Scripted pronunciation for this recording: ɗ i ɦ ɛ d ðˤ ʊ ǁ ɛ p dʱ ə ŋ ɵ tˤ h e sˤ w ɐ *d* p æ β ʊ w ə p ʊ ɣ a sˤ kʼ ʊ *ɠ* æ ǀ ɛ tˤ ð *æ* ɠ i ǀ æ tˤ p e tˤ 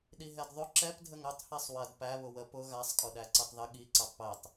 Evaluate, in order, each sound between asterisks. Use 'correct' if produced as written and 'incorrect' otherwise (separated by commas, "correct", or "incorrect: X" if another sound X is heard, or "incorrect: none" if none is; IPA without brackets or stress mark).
correct, incorrect: ɗ, incorrect: ə